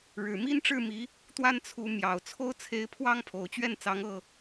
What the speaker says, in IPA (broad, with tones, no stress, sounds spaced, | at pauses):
ɻ ɻ̩˨˩ m i˦ n ʈ͡ʂ ɻ̩˥˨ m i˨˦ | t̪ w a˦ n t͡sʰ u˨˦ m j ɑ˨˩ ʊ̯ t͡sʰ o˦ ʊ̯ t͡sʰ e˨˦ ɪ̯ pʰ w ɑ˦ ŋ pʰ o˨˩ ʊ̯ t͡ɕ ɥ ɛ˥˨ n t͡s ɑ˨˦ ŋ ɤ˥˨